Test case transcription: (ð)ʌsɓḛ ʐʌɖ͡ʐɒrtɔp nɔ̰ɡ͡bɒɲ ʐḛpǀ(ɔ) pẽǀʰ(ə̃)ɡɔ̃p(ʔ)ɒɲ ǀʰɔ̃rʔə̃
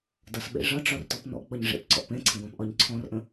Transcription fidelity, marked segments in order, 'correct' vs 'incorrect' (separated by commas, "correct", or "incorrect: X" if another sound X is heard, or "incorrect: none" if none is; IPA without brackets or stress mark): incorrect: d, incorrect: ɔ̰, correct, correct